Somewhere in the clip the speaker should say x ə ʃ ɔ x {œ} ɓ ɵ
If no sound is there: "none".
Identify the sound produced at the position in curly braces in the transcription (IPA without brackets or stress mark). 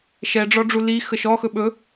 ɵ